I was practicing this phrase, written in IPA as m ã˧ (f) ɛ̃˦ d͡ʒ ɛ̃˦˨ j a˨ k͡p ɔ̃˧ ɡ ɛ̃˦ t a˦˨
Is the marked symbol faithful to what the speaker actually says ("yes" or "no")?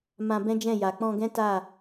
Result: no